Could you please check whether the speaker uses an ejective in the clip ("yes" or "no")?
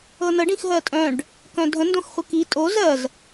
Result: yes